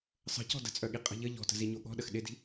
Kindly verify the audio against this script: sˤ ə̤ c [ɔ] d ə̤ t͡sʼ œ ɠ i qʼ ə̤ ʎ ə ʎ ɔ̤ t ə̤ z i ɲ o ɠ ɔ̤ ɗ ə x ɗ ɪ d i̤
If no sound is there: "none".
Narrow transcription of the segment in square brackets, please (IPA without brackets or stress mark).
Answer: ɔ̤